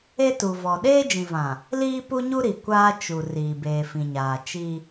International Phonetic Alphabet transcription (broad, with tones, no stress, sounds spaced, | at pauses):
e˦ t u˨ v ɔ˨ ɗ eː˦ d͡ʒ ĩ˨ v ã˨ | l iː˦ p u˦ ɲ u˦ ɾ i˨ kʷ aː˦ t͡ʃ u˨ r iː˨ b eː˨ f ĩ˨ ɲ aː˨ t͡ʃ i˦